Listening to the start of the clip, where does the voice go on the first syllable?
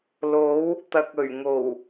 rising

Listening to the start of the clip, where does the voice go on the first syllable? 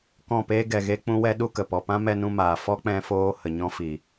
falling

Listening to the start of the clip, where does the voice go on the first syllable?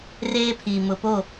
high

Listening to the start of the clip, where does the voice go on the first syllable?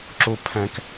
low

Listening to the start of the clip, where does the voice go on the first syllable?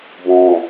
low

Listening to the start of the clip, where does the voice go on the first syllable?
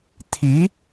rising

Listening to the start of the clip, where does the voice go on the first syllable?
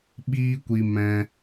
high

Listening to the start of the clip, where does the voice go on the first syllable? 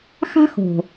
high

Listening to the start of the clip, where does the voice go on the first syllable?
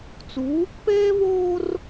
rising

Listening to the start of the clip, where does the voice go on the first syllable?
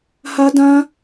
high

